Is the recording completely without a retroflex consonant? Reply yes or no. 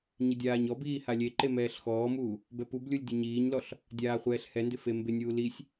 yes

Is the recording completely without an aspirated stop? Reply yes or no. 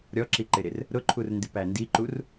no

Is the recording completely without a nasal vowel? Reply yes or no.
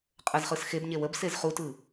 yes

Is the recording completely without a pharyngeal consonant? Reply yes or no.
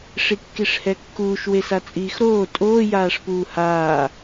yes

